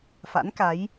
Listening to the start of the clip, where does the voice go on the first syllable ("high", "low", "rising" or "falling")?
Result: rising